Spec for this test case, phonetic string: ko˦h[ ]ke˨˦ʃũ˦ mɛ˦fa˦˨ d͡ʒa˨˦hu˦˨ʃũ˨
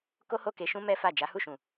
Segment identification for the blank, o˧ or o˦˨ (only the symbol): o˦˨